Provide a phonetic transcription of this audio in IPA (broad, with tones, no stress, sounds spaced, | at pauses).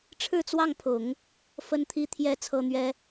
ʈ͡ʂʰ ɻ̩˥˧ t͡s w ɑ˥˩ ŋ pʰ ʊ˨˩˦ ŋ | f ə˥ n t̪ʰ i˥ t̪ʰ j ɛ˥ t͡sʰ ɤ˥ n̪ ɥ ɛ˥